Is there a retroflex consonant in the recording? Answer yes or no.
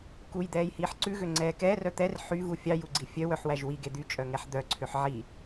no